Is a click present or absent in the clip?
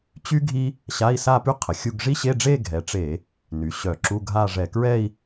present